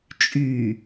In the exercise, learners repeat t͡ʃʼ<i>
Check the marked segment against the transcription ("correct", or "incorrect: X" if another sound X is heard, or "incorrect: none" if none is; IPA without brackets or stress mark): incorrect: y